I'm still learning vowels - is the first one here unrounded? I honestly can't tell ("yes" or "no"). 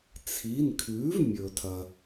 yes